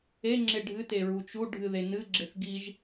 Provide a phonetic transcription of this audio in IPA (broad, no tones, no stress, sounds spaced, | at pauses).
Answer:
e ŋ͡ǁ e ɖʱ ɨ t e ɹ u t͡ʃ u ɖʱ ɨ ð e n ɨ ɡ͡ǁ e θ ɡ i ʒ